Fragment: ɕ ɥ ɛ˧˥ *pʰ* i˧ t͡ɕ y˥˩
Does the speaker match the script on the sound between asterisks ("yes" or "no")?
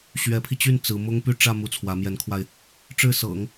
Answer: yes